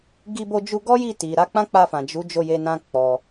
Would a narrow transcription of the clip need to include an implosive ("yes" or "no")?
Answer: no